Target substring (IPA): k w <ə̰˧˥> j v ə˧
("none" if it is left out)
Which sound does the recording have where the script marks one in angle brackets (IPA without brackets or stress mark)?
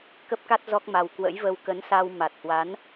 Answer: ə̰˧˥